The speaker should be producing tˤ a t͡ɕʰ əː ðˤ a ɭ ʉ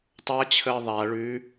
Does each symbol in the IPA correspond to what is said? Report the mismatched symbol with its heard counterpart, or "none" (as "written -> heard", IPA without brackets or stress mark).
none